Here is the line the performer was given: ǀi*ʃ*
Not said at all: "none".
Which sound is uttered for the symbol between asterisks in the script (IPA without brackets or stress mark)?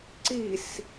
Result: s